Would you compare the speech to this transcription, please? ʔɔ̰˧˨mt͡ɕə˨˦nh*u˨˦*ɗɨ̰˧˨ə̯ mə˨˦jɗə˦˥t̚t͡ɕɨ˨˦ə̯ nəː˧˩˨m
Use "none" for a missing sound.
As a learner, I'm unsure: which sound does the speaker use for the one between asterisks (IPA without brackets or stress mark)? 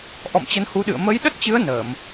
u˨˦